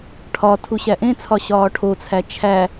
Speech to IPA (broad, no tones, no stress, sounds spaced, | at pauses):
ʈʰ ɒ tʰ u ɕ æ ʔ ẽ t͡sʰ ɒ ɕ ɒː ʈʰ o t͡sʰ æ t͡ʃʰ æ